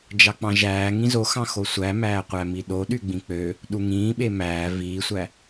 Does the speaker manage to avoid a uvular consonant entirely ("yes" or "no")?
no